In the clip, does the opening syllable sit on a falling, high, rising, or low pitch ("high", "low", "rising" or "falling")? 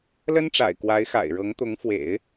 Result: high